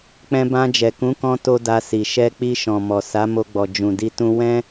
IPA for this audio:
k͡p ɛ̃˧ b ã˧ d͡ʒ ɛ˨ k ũ˨˦ k ɔ̃˦ t o˦ d a˧ s i˨ ʃ ɛ˧ k͡p i˧ ʃ ɔ̃˨ m ɔ˨ s a˨˦ m o˧ ɡ͡b ɔ˨ d͡ʒ ũ˨ d i˧ t ũ˦ w ɛ̃˦

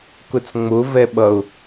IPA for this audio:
k ʊ t͡s ŋ͡m ʊ v ɛ ɓ ʌ ʊ̯

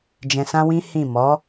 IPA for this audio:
d͡ʒ ɛ̃˧ s ã˦ w ĩ˦ h ĩ˦˨ m ɔ˨˦

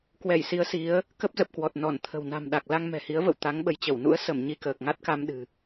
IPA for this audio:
k w ɛ˧˩ j s i˨˦ ə̯ s i˨˦ ə̯ | k ə˦˥ p̚ z ə˨˩ p̚ k w ɔ˨˩ t̚ n ɔ˧˩ n t̪ʰ ə̤˨˩ w n a̤˨˩ m ɗ a˨˩ k̚ l a˧ ŋ m ɛ̤˨˩ h i˨˦ ə̯ v ə̰˧˨ w t̪ a˨˦ ŋ ɓ ə˨˦ j t͡ɕ ə˧˩ w n ṵ˧˥ ə̯ s ə˧˩ m ɲ i˧ k əː˨˩ k̚ ŋ a˦˥ t̚ k a˧ m ɗ ɨ̤˨˩

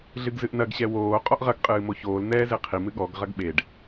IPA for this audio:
ɮ ɨ ɡ z ɨ ʔ n ɐ ɡ ɕ ɛ w oː qʼ ɔ ʔ ʁ ɐ ɡ qʼ ɨː m o ç oː l n̪ ɛː z e qʰ i m ɨ ɠ ɔ ɡ ʁ ɐ ɡ ɓ e ɖ

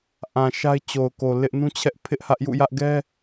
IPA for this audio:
ʔ ã˨ ʃ a˦ ɪ̯ t͡ɕ o˨ ʊ̯ k o˨ l ɪ˦ ʔ n ũ˦ t͡ɕʰ ɛ˦ ʔ pʰ ɪ˦ ʔ h ä˦ ʔ j ṵ˦˨ j ä˦ ʔ ɡ ɛ˦

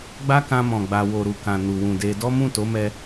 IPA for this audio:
ɡ͡b a˦ k ã˧ m ɔ̃˨ ɡ͡b a˧ w o˧ ɾ u˨ k ã˨ n u˨ w ũ˨ d e˧ d ɔ˦ m ũ˦˨ t o˨˦ m ɛ˧

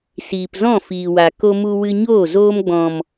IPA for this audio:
s iː˨ p z ɔ̃˦˨ f iː˨ w a˨ k o˧ m u˧ w ɨ˧ ɲ oː˦˨ z oː˧ m ɡ͡b ɔ̃˨ m

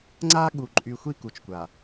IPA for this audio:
ŋ͡ǀ a˦ ɠ u˨ ǃʼ y˨ xʷ i˦ k u˨ t͡ʃ kʷ a˨

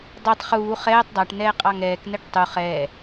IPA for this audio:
dˤ e tˤ χ uː χ ɛː tˤ dˤ a ʈ n ɛː qʼ ɑ ŋ ɛː k n ɛ ʈ tˤ u χ ɛː

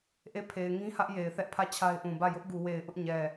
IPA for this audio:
ʔ e˦˨ pʰ e˨ ɪ̯ ŋ ĩ˦ h ä˦ ʔ j e˨ ɪ̯ θ ɛ˦ ʔ pʰ ä˦˨ t͡ɕʰ a˦ ɪ̯ ʔ ũ˨ b ä˦˨ j ʊ˦ ʔ ɡ u˨ w e˨ ɪ̯ ʔ ʊ˦ ʔ ɲ ɛ˨

